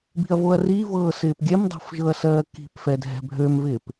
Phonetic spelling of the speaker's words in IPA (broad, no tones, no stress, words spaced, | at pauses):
bi̤ɐ̯voɐ̯rivɤː sɪːpɡʲɛmdˤo̤f ʒɤɐ̯sɜːki̤pfɛ dʱɛ̤bʱømvɪːp